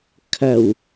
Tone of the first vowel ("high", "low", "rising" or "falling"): low